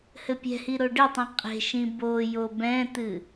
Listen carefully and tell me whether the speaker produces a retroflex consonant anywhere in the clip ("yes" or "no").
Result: yes